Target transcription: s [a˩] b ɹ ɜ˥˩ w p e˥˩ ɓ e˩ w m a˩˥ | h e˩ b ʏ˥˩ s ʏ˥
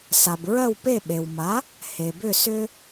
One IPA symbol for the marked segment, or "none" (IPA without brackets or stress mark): a˩